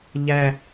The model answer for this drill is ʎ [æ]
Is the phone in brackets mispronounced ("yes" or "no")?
no